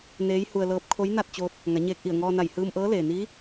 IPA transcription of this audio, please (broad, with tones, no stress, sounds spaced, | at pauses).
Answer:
n eː˧˥ j h u˧ ə̯ l ɤː˧˥ p̚ kʰ o˧˥ j n a˥˨ t̚ t͡ɕ oː˧ t̚ | ŋ a˩˧ ɲ eː˧ k̚ ʔ i˧˩ ə̯ ŋ ɔː˧ n a˧˩ j h ɯː˧ m ʔ ɤː˧˥ l eː˩ n iː˧˥